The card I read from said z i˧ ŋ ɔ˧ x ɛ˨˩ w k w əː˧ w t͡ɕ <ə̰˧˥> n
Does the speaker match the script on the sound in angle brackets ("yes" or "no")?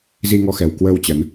no